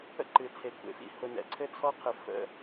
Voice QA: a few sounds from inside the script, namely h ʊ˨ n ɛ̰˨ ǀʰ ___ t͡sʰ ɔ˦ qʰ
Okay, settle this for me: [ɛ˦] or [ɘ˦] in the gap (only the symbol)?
ɘ˦